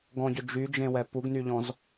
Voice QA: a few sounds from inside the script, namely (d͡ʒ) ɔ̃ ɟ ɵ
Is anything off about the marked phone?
yes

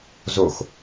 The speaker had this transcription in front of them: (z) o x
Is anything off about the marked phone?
no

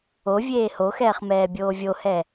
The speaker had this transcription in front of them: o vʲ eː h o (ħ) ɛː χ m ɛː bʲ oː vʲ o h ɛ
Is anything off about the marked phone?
yes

